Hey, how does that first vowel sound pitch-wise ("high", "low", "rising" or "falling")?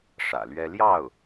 low